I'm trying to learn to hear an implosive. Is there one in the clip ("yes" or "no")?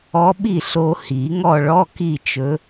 yes